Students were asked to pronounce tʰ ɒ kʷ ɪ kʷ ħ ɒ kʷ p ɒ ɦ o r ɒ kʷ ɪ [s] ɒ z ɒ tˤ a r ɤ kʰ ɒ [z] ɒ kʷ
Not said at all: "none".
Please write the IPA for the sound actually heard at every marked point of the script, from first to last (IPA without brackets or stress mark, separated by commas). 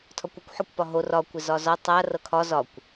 z, z